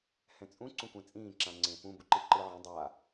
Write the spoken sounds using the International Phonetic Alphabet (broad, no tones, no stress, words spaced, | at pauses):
hɛ̃t͡sʼũ ǀũkʷɛ̃t͡sʼĩː ǁãŋ͡ǀẽ pũ buǃiǃɯːʕĩ dˤaː